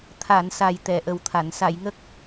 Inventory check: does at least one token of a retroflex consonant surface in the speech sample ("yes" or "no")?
no